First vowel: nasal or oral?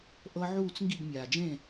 oral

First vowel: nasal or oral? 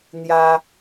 oral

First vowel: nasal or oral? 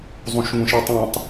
nasal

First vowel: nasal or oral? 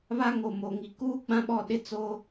oral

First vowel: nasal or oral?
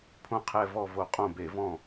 nasal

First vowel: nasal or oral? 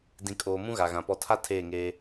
nasal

